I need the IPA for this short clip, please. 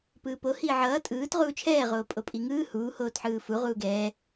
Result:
p ɯː p o h iː ʕ ʌː tʼ ɯː t ʁ uː t͡ʃʰ ɛː ʁ oː pʼ o pʼ i ŋ ɯː h uː h oː t ħ ɯː f u ʁ uː ɡ ɛː

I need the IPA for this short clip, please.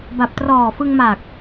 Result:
b a˨˩ p̚ t r ɔː˨˩ f ɯ˧ ŋ m a˨˩ k̚

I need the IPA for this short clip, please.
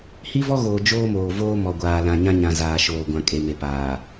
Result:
h i˦ v ɔ˦ ɣ oː˨ d͡ʒ oː˦ m oː˨ v oː˦ m ɔ˨ ɡʷ aː˨ l ã˨ ɲ ã˦ ɲ ã˨ z aː˨ ʃ oː˨ ɡʷ ã˨ kʼ e˨ m e˨ p aː˨

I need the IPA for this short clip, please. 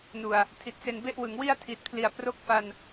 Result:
n u˨˩ a̯ | tʰ i˨˩ t̚ s e˧ n b e˥˩ ʔ w ɯ˩˦ ŋ w i˥˩ a̯ tʰ i˨˩ t̚ pʰ l i˩˦ a̯ p r o˦˥ k̚ f a˧ n

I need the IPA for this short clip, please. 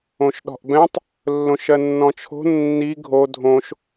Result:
õ ʃ ɗ ɔ̤ ʔ b ɛ̃ tˤ | lː õ ʃ ɜ nː ɔ̃ t͡ʃʰ o̤ nː i ɡʱ o dʱ õ ʃ

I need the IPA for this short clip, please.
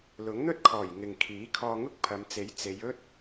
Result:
l ʊ˨˥ ŋ n̪ ɵ˥ t̚ kʰ ɔː˨˩ j ŋ ɪ˨ ŋ kʰ iː˨˥ kʰ ɔː˧ ŋ ʊ˥ k̚ pʰ ɐ˨˧ m t͡s e˨˥ j t͡s e˨˧ j ɵ˥ t̚

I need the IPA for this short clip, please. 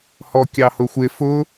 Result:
h ɔ kʲ ɑ h ʊ xʷ ɪ f ʊ

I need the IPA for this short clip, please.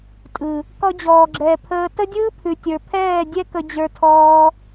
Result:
tʼ ɯ˨ | k ɔ˧ d͡ʑ ɔː˨ ɡ͡ǁ ɛː˨ pʰ əː˧ t ə˦ dʲ ɯː˦ pʰ ʉ˨ tʲ ə˞˨ pʰ ɛː˦˨ dʲ ɛ˦ k ə˧ d͡ʑ ə˞˧ tʰ ɔː˧

